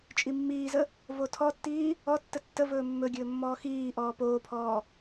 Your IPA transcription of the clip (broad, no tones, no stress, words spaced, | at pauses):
t͡ʃʼimːiːzə | votʰɔtːiː | ɔtːə tːəvɵː mːɵɡʲɵː mːɔːxiːʔɔː poːpʰɔː